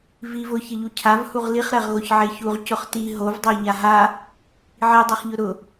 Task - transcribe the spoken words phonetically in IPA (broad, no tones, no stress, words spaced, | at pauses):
viv ʊçɪʎu cʰavhuʁ liχɾɛʁɣoç ʕeçuʁ cʊχti ɦovdˤo ʎaɦa | ʕidˤɛχʎʊ ɾʊ